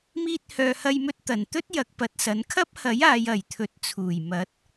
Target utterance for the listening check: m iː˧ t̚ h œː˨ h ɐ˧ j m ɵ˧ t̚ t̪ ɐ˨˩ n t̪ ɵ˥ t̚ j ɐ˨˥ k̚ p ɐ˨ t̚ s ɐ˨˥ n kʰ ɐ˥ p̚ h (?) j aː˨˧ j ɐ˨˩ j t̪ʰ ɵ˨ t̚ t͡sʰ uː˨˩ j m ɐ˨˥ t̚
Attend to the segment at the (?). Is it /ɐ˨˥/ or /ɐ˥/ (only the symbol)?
ɐ˨˥